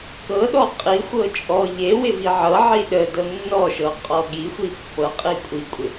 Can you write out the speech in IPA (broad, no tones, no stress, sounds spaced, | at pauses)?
k ɤ ɗ ɔ qʼ i xʷ ɤ t͡ʃʼ ɔ ʎ e w ɪ v i ʕ ɤ ʕ i ɗ ə d ɤ nː ɔ ʃ ɤ qʼ ɔ ɠ i xʷ i pː ɤ qʼ i kʷʼ i kʷʼ ɪ